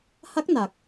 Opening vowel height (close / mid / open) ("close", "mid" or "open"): open